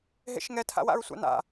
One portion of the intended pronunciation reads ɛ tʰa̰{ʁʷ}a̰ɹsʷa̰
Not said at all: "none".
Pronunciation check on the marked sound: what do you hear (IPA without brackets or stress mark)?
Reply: w